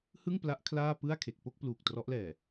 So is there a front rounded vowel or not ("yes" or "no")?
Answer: no